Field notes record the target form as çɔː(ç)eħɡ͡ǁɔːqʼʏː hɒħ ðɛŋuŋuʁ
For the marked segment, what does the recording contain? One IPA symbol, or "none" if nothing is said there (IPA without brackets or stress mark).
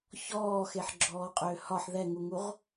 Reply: x